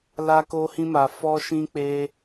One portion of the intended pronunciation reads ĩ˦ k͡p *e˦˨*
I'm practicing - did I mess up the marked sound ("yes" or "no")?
yes